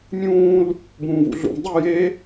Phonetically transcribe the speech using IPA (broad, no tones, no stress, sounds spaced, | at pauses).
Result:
mʲ ũː l | b ũː v ṵ ɮ ṵ m dˤ i j e